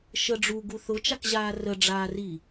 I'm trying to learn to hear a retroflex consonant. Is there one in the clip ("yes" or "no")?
yes